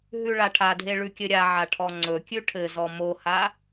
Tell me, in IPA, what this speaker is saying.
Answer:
ɦ ʉ ɭ a ʈʰ a dʱ e ɭ ʉ kʲ ɘ ɾʲ a ʕ a ʈʰ ɔ ŋ͡ǀ ɵ kʲ ʉ ʈʰ ɘ z ɔ m o h a

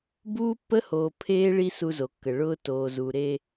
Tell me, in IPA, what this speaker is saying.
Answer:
b uː˦ pː ə˦ h oː˨ pʰ eː˦ ɭ i˦ s u˦ z o˨ kː ə˨ ɭ ʊː˦ t oː˨ z uː˨ ɾ e˦

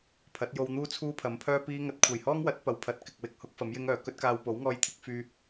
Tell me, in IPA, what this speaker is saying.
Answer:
pʰ ɐ˨˥ t̚ j o˧ w n̪ uː˥ t͡sʰ uː˥ pʰ ɐ˨˥ m pʰ œː˥ p iː˥ ŋ ɐ˧ t̚ kʷʰ ɐ˨˩ j h ɔː˥ ŋ w ɐ˨˥ t̚ p ɐ˨˥ w pʰ ɐ˨˥ t̚ k ɪ˨ k̚ w ɪ˨ k̚ h ʊ˨˥ k̚ f ɐ˨˥ m j ɪ˥ ŋ œː˨˩ k ɵ˥ t̚ k aː˧ w p o˨˥ w ŋ ɔː˧ j t̪ʰ ɪ˨˥ k̚ f yː˧

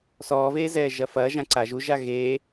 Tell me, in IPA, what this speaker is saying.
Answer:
s ɔː v eː z ɛː ʒ ɐ f ɐː ʒ ã ǀ a ʒ u ʒ a ɣ e

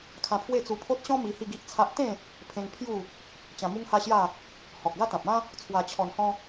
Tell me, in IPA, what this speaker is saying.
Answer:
kʰ ã˧ pʰ w e˥˧ t͡s u˧ pʰ o˦ t̚ ɕ ɔ̃˦ m i˧ h i˥˧ ɡ i˦ ʔ t͡sʰ a˦ ʔ t̪ ẽ˥˧ | pʰ ẽ˧ ŋ pʰ j u˥˧ | t͡ɕ ã˧ m u˦ ŋ h a˦ ɕ j a˥˧ | h ɔ˨ k̚ ɡ a˦ t̪ ã˨ p̚ ã˦ | t͡sʰ w a˧ t͡ɕʰ ɔ˧ n h ɔ̃˦

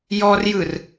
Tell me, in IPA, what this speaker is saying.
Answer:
j ɔ r j ɯ r

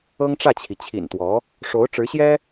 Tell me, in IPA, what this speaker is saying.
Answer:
ɤ˥ ŋ ʈ͡ʂ ä˥˩ t͡ɕʰ i˩ t͡ɕʰ ḭ˨˩ n t̪ w ɔ˧˥ | ʂ o˧˥ ʊ̯ ʈ͡ʂ ɻ̩˧˥ ɕ j ɛ˥

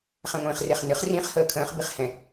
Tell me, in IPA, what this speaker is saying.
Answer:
χ ɛ̃ ŋʷ ĩː χ r e χ n ɨ χ r ĩ χ h əː kʰ ə̃ː χ b i χ h ɛ̃

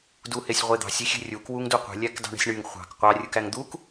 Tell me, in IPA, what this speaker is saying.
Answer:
d u h e sʲ ʁʷ e d̪ ɑ̤ sʲ i xʲ e̤ rʲ u k w u ŋ d u qʷ e̤ lʲ æ k d ɑ̤ ɳ e̤ sʲ ɳ y ŋ χʷ ɑ̤ k qʷ ɑ rʲ ɯ k æ ŋ d̪ u k

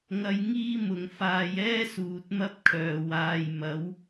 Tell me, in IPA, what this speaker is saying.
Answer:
ŋ ɐ˧ j ŋ iː˥ m ʊ˨˩ ŋ f aː˨ j ɛː˥ s uː˨˥ t̚ m ɐ˥ p̚ kʰ œː˨ w aː˨ j m ɐ˨˥ w

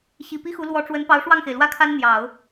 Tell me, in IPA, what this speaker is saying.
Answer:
ɕ i˨˩ p i˥ x u˧˥ l w ɔ˧˥ ʈ͡ʂ w ə˧˥ n p ɑ˧˥ ʊ̯ ʂ w ɑ˥˩ ŋ x e˩ ɪ̯ l w ä˥ kʰ a˥ n n̪ j ɑ˨˩˦ ʊ̯

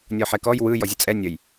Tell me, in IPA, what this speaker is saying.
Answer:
nʲ ɔ ħ ɛ k ɔ j w ɯ j ɔ zʲ ə t͡sʼ ɛ nʲ ə j

